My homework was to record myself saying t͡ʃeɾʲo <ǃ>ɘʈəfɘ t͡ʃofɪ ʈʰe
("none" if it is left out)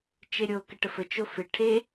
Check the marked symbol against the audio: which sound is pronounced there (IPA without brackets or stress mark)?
k